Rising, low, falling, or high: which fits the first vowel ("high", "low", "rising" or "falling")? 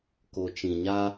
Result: low